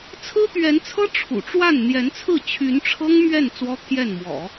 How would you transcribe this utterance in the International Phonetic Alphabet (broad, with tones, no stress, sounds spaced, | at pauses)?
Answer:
t͡sʰ ɹ̩˥ t̪ ɥ ɛ˧˥ n t͡sʰ ɤ˥ ʈ͡ʂʰ ṵ˨˩ ʈ͡ʂ w a˥˩ n n̪ j ɛ˧˥ n t͡sʰ ɹ̩˥˩ t͡ɕʰ y˧˥ n ʈ͡ʂʰ ɤ˥ ŋ m ɥ ɛ˥˩ n t͡s w ɔ˥ t̪ʰ j ɛ˥˩ n m w ɔ̰˨˩˦